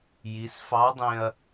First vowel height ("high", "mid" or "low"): high